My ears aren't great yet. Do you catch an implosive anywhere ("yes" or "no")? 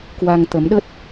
yes